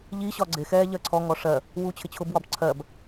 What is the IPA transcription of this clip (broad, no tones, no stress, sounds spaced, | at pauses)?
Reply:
ʎ i ɕ ɒ ɡ͡ǀ ɪ x ɛː ʎ ɜ ǀʰ ɔ ŋ ɔ ʂ ɜ | w uː t͡ɕʰ ɪ t͡ɕʰ ʊ b w ɒ b ǀʰ ɜ b